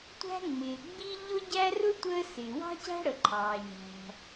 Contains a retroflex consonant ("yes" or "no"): yes